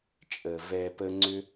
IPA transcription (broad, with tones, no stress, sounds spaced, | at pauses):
t͡ʃʼ ə˨ v ɛ˧ p ə˦ ŋ͡ǀ ʏ˦